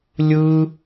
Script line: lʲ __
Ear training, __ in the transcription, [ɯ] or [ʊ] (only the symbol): ɯ